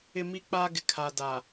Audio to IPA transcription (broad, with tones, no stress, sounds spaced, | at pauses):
ɪ˦ m i˦ k͡p a˦ ɡ ɪ˨ kʰ a˨ d a˨